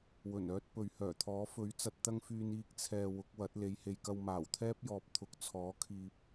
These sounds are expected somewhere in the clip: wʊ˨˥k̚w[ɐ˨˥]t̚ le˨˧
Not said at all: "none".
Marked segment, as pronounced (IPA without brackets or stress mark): ɐ˨˥